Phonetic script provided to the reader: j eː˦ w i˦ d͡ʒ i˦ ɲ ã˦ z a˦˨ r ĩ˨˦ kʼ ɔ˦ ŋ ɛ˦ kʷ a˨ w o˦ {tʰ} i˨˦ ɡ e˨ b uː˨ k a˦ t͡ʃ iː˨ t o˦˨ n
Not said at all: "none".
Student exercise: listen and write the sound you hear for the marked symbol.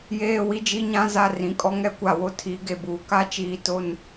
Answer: tʰ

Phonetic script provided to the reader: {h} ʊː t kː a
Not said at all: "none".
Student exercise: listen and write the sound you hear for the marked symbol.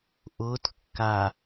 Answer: ʔ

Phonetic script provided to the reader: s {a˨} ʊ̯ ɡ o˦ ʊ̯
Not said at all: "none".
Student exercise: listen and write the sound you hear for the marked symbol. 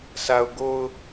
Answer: a˨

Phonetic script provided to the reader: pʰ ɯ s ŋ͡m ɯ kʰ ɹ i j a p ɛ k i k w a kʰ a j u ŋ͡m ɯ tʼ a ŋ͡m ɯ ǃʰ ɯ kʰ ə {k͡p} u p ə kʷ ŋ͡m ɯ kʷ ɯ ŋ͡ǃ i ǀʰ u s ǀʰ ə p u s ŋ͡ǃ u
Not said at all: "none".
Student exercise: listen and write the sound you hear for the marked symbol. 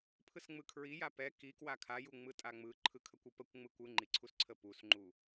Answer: kʷ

